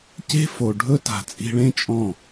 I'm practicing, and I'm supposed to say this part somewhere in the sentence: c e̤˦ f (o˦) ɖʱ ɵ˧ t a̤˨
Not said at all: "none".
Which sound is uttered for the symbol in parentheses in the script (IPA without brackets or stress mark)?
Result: o˨